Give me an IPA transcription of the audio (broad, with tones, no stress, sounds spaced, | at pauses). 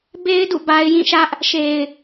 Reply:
b e˦ ɪ̯ d ṵ˦˨ b a˦ ɪ̯ j ĩ˦˨ ʃ ä˦ ʔ | ʃ e˨ ɪ̯